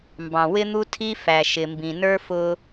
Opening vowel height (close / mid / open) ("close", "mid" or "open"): open